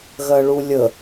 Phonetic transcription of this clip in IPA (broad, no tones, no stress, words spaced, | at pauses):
ɣɜɭulʲə